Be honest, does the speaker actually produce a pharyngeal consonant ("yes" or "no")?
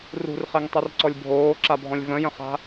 no